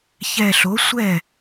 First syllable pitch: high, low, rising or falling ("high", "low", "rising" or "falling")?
low